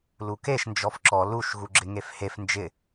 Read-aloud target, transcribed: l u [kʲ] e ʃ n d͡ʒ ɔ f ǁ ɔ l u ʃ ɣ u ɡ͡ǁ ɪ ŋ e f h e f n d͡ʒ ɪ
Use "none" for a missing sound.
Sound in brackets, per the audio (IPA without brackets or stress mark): k